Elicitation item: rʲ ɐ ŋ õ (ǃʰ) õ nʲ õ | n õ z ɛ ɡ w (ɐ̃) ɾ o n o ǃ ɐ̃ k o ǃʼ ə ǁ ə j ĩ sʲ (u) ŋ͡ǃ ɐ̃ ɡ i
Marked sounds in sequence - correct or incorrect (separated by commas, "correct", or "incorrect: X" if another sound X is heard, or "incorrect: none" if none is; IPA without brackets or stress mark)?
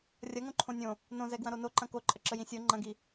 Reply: correct, correct, incorrect: o